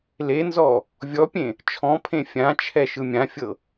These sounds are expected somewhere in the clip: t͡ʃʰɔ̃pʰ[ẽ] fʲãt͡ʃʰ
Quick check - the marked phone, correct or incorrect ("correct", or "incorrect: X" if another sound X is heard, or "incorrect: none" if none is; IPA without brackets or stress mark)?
correct